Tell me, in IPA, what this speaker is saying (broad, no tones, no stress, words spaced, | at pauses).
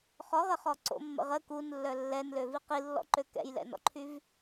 χɔʁəχɔ ǀo̰mːə̰ʁ ə kunlːœ lːɛnløvi qilːɔ̰ǃø kɛ̰jlɛ̰nɔ̰ǃʰyv